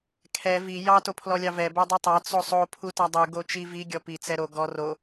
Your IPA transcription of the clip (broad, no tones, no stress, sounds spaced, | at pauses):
kʰ ɛ v i j ɑ t o pʰ l ɔ lʲ ɑ v ɛ b ɛ dˤ i tˤ ɑ t͡s o sˤ o pʰ u t ɑ dˤ u ɡ o t͡ʃ i v i ɡʲ ɔ p i t͡s ɛ ɾ o ɡ ɔ r o